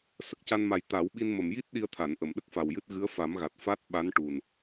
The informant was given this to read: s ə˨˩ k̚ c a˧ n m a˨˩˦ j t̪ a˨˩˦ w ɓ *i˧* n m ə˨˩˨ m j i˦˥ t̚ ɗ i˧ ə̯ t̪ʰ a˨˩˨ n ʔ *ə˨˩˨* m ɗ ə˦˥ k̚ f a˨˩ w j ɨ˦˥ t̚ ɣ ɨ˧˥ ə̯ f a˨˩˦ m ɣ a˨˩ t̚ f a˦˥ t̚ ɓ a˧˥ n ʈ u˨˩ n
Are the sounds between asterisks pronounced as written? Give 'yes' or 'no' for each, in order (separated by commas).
yes, yes